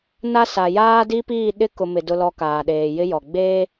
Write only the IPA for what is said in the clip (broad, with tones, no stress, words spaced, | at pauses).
na˦sa˨ jaː˦di˦piː˦˨ɗɪ˦ kʊ˨mɪ˨ dʊ˨lɔ˨ kaː˨ɗeː˨jɪ˦jɔ˨ ɡ͡beː˦